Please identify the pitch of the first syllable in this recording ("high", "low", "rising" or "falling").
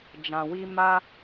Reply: low